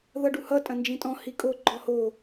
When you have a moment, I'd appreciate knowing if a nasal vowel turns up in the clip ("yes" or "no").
yes